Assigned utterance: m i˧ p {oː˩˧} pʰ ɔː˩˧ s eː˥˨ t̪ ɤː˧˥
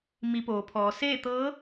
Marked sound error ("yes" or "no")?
no